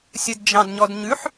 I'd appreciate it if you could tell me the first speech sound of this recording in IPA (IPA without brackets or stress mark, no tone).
sʲ